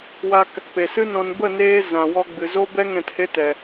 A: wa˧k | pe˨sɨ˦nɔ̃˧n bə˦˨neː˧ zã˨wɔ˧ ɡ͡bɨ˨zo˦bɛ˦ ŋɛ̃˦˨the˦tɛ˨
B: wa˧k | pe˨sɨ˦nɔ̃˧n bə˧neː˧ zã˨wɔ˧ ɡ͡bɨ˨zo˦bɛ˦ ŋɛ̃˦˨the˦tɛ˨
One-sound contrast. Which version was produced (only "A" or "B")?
A